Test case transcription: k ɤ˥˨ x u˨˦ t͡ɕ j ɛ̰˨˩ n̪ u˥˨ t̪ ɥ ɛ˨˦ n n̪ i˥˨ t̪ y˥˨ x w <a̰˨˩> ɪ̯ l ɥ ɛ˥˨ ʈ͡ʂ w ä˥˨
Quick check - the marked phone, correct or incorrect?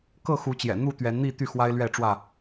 incorrect